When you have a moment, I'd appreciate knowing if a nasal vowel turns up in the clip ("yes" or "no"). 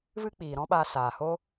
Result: yes